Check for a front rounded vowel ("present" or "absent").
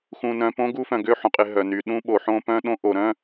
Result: present